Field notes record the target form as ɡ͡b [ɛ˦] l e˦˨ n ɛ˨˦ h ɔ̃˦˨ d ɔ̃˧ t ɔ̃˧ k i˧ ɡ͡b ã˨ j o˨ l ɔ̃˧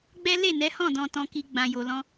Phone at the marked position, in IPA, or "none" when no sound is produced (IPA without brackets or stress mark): ɛ˦